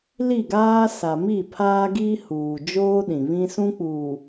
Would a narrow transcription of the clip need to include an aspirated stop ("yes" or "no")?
yes